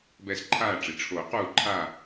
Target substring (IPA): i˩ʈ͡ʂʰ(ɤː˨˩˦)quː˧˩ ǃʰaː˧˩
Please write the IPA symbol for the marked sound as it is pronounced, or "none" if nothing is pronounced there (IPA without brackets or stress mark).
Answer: oː˨˩˦